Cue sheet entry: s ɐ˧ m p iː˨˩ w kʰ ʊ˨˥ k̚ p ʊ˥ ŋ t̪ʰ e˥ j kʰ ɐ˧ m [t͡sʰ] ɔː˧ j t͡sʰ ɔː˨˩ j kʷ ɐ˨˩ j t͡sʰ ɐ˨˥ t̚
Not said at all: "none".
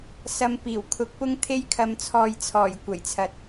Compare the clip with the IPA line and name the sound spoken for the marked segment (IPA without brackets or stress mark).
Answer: t͡sʰ